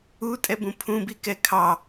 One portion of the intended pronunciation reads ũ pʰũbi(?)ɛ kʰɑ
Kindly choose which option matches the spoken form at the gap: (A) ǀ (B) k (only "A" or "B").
B